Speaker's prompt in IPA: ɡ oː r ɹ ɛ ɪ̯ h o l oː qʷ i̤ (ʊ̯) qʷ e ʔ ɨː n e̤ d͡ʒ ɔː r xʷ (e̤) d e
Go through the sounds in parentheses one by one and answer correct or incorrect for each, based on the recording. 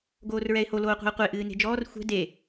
correct, incorrect: ɛ̤

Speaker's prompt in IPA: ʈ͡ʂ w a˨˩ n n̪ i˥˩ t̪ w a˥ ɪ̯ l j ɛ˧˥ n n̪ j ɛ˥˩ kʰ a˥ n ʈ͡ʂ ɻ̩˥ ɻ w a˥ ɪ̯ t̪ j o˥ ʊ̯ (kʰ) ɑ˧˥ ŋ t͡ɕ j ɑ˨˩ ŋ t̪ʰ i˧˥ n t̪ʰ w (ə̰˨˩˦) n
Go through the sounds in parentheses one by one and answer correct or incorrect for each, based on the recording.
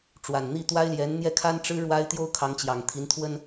correct, incorrect: ə˥

